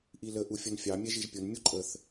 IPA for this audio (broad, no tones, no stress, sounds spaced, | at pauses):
ʔ i l ə ʔ u fʲ ʌ n fʲ ɑ mʲ ɛ ʒ i ʒ pʲ ʊ n mʲ u ǃʼ ə θ